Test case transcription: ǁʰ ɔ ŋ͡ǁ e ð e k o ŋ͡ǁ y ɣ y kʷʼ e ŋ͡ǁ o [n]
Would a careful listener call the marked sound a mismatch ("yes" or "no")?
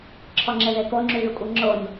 no